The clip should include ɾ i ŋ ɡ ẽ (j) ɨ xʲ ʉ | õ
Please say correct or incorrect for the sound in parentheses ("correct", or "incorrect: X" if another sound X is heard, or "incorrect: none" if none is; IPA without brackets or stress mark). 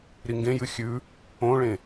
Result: correct